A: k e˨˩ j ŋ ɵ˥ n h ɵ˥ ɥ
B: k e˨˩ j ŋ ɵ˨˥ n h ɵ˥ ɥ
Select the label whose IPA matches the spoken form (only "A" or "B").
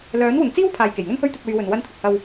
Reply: A